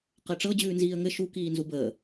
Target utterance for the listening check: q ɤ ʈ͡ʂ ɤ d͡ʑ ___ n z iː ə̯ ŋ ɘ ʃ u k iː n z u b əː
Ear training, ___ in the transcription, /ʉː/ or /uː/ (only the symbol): ʉː